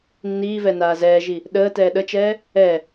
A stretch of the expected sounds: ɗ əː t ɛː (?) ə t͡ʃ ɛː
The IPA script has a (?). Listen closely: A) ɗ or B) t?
A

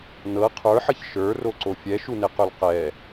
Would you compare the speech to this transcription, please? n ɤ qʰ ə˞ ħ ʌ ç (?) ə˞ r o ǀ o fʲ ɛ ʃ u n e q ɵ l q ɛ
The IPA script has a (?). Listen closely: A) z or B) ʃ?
B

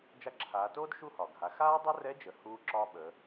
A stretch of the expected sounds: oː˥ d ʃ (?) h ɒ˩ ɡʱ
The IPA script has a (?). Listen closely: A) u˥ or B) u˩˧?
A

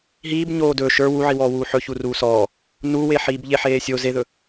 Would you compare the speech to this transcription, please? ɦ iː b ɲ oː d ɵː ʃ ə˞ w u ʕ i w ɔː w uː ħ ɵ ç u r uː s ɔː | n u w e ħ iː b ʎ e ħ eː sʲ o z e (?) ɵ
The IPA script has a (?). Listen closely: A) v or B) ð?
B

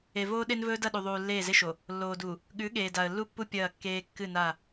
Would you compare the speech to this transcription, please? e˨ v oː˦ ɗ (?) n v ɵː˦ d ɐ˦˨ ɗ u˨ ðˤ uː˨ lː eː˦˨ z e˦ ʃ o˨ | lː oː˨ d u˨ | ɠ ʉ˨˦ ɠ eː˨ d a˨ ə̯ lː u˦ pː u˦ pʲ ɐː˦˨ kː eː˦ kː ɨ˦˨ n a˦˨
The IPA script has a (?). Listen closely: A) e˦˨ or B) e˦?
B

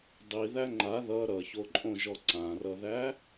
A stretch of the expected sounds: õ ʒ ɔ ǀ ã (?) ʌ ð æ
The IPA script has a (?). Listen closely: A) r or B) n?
A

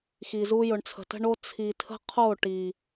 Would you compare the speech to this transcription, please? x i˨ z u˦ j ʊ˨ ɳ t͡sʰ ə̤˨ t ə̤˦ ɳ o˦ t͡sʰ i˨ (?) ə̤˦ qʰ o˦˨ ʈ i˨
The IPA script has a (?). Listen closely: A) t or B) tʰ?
B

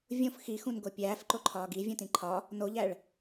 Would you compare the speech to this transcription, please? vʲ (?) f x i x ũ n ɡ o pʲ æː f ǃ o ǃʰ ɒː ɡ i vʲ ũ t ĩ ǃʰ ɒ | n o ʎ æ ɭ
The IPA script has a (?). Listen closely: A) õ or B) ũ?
A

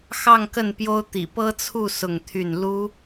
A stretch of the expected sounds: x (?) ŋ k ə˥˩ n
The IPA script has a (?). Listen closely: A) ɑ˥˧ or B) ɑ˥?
A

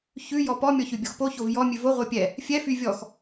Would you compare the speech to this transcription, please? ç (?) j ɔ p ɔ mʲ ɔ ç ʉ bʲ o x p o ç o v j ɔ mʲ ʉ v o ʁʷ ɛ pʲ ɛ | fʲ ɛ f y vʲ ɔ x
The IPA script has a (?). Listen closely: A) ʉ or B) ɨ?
A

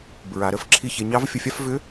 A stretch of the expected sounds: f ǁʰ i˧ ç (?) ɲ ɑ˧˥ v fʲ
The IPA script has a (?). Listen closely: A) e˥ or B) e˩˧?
B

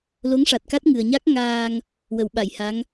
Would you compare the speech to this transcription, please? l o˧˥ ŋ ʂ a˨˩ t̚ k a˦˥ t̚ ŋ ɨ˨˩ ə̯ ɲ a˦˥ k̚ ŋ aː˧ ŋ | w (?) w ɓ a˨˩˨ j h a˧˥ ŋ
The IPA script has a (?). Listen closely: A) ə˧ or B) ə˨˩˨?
B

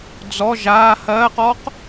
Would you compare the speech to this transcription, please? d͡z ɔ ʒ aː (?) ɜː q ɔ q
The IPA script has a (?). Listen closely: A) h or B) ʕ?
A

